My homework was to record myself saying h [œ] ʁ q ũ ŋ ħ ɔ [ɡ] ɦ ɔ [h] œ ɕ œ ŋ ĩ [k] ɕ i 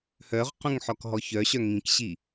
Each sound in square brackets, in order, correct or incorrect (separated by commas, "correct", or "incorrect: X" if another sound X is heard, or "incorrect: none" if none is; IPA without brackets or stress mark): correct, incorrect: k, incorrect: ç, correct